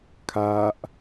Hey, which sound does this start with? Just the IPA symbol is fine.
kʰ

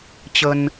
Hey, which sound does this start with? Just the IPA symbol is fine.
t͡ɕ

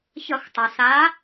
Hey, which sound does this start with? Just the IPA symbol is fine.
ç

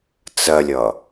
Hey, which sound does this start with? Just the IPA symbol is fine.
t͡s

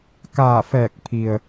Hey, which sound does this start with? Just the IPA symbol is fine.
k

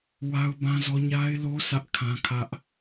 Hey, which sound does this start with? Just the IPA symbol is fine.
w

